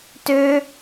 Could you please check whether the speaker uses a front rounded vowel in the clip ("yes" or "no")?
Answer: yes